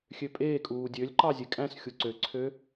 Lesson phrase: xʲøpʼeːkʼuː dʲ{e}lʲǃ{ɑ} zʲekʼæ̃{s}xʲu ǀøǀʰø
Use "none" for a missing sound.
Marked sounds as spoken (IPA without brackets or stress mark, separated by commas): ø, ɑ, s